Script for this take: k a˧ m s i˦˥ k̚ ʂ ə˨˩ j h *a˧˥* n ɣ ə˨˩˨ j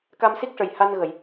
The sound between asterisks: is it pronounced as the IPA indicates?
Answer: no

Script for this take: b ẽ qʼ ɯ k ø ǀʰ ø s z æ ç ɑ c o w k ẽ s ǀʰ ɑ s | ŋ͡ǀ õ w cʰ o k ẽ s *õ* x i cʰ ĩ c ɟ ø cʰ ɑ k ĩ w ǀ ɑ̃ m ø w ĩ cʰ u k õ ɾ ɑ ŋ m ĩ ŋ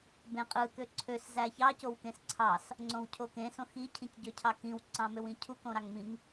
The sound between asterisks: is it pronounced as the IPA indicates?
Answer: yes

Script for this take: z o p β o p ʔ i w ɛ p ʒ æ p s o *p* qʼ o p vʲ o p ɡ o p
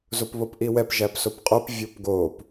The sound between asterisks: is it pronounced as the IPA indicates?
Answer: yes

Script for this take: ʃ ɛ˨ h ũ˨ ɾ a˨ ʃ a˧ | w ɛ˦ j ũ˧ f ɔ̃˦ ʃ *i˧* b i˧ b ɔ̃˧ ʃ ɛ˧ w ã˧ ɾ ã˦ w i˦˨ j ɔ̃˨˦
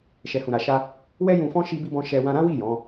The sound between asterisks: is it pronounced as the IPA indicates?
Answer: yes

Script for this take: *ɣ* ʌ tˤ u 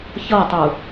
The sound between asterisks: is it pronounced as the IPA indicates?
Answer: no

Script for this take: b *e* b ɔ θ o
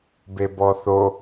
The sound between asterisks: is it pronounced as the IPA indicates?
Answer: yes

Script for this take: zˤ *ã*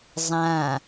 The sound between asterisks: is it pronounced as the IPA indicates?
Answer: yes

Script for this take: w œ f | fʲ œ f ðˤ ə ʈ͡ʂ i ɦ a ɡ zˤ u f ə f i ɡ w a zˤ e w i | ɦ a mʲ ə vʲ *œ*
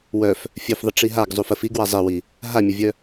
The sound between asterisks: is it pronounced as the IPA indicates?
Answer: yes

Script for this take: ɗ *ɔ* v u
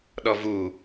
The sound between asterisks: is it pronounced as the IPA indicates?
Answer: yes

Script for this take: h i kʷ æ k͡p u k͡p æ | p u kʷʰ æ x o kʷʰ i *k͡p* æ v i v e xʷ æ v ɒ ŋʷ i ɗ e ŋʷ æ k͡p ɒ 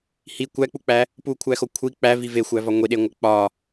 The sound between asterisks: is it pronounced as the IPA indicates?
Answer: yes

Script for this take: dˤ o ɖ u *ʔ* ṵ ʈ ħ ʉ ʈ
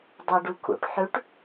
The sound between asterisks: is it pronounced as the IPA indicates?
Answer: no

